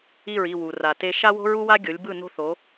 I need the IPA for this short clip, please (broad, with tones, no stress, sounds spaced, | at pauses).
i˦˨ ɹ i˦˨ w u˨ r a˨ t e˦ ʃ a˦ w o̤˦ ɹ u˦ w a˦ ɡʲ o˨˦ lʲ b ɯ˦˨ n o̤˦ θ o˨˦